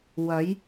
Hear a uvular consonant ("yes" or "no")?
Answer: no